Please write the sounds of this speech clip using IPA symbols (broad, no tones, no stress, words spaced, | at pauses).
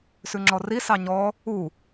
sʉŋ͡ǁɔri sɑɲɔ | u